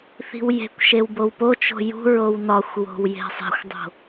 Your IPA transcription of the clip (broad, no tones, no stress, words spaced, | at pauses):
θi̤wje̤kʷʃew bowpot͡ʃo̤ jṳɹow nɒxʷ wo̤wje̤sˤe̤xʷdˤo̤